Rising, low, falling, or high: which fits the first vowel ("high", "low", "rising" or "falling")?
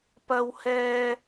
high